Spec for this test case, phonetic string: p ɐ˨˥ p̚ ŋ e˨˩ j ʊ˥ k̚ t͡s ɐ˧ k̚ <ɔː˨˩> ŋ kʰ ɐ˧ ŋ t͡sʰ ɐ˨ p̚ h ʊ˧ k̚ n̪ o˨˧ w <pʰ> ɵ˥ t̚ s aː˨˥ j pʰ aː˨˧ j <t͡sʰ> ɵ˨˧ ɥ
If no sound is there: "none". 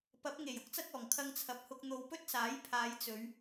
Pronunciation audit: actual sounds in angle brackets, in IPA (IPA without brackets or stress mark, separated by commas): ɔː˨˩, p, t͡s